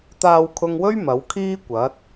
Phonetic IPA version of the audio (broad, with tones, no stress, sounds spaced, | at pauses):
t̪ aː˧ w kʰ ʊ˧ ŋ w ɵ˥ ɥ m ɐ˨˥ w kʰ iː˥ kʷ ɐ˨˥ t̚